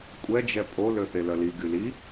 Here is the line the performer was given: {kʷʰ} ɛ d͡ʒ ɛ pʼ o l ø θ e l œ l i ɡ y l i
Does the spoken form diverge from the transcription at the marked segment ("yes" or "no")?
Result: yes